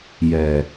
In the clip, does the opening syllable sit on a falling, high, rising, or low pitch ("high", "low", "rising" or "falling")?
low